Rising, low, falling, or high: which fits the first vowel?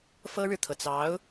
high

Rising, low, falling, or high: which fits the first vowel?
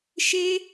high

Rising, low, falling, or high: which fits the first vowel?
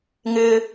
high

